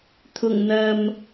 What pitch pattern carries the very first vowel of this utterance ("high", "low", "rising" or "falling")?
low